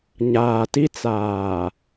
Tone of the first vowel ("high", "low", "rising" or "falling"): low